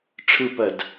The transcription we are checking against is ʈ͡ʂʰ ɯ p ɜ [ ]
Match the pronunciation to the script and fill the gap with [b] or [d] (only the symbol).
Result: d